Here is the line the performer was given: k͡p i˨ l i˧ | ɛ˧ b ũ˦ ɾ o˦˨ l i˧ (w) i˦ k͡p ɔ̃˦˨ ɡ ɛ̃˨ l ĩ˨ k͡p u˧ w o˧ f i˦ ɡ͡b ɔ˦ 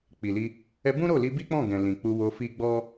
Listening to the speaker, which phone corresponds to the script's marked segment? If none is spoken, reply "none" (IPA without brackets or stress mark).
b